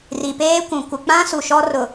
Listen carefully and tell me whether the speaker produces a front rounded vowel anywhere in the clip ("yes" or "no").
no